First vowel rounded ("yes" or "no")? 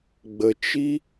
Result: no